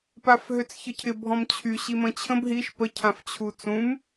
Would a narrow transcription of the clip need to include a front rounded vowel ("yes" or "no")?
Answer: yes